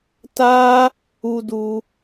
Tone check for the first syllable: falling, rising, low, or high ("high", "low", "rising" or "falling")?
high